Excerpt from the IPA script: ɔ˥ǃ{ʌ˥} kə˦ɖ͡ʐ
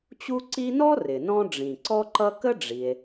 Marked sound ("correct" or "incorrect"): correct